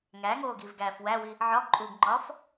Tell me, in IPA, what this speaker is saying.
ŋ æ ŋ oː ɡ i v ɡ æː f w æ w i | ʕ ɒ ɡ ǃʼ uː ɡ ŋ͡ǃ ɒː f

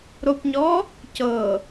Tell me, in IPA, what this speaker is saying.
ɾ o p ɲ ɔ | c ɤ

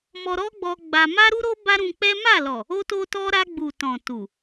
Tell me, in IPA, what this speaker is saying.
m ɔ˧ ɾ ɔ˦ ɡ͡b ɔ˧ ɡ͡b a˧ m a˦ ɾ u˦ ɾ o˦ b a˦ ɾ ũ˧ k͡p ɛ˦ m a˦˨ l ɔ˨ | o˦ t o˦ t ɔ˦ ɾ a˧ ɡ͡b u˨ t ɔ̃˨ t u˨

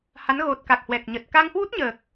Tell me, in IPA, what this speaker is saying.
h a˨˦ n ɣ o˨˩ t̚ k a˨˩ k̚ h w ɛ˨˩ k̚ ɲ ə˨˩ t̚ k a˧ ŋ h w u˦˥ t̚ ɲ əː˨˩ k̚

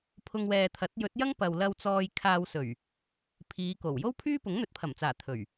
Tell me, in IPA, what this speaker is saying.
pʰ ʊ˧ ŋ w ɛː˨ t̪ʰ ɐ˨˥ t̚ j ɵ˨˥ t̚ j ɐ˥ ŋ p ɐ˨ w l ɐ˧ w t͡s ɔː˧ j kʰ aː˧ w s ɵ˨˩ ɥ | pʰ iː˨˧ k o˨˩ w j o˥ w pʰ yː˥ p ʊ˨˥ ŋ n̪ ɵ˨˥ t̚ pʰ ɐ˨˩ m t͡s aː˨˩ t̪ʰ ɵ˨˩ ɥ

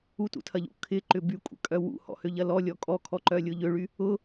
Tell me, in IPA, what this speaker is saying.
u t ṵ tʰ ɐ ʎ ṵ kʰ ɪ ǃ ʏ b y kʷʼ ə̰ kʼ œ w ṵ h ɔ̰ h ø ʎ ɐ l ɔ lʲ ɔ kʼ ɔ kʰ ɔ ǃ œ lʲ ʊ ʎ ø ɭ y | ʊ

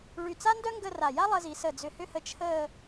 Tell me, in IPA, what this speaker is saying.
ɭ y˧˩ t͡s a˥ n d œ˥ ŋ ɡ ə˥˧ r a˧˩ j a˥ lˠ əː˧ z i˩˧ s ə˧˩ d͡z ʏ˧˩ h ʏ˥˧ h ə˧ t͡ʃʰ əː˥˧

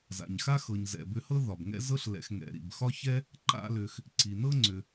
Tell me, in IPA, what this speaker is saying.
z a̰˩ ɲ x a˥ x ɤ˩ ɲ z ɛ̰˩ b ʏ˧ h ɤ˥ ð ɒ˩ b ŋ ɛ̰˥ z ɤ˧ ɬ l ɛ̰˩ x ŋ ɛ̰˩ ɾ ḭ˩ b x ɒ˥ ç ɛ˥ | ǃ a̰˧ l ʏ˩ x | ǀ i˩ n ɤ˥ ŋ͡ǀ ʏ˩

